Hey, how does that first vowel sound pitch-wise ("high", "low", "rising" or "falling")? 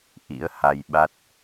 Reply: rising